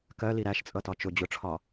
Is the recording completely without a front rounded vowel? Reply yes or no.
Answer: yes